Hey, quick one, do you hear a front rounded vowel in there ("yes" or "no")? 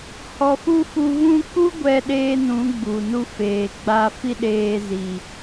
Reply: no